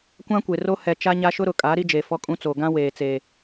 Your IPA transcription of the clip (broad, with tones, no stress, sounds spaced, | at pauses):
kʷ ã˦ kʷ e˨ r o˦ h ɛ˨ t͡ʃ a˦ ɲ a˦ ʃ ʊ˦ ɾ ʊ˨ kʼ a˨˦ ɾ i˦ d͡ʒ e˨ f ɔ˦ kʼ ũ˦ t͡s oː˨ ɡ ã˦ w eː˨ t͡s eː˨